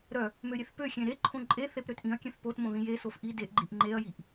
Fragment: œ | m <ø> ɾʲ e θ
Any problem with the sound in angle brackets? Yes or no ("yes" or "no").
no